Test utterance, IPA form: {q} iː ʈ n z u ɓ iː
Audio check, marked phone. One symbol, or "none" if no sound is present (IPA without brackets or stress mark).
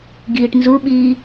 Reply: ɡ